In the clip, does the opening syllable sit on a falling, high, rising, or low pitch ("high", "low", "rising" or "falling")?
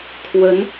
rising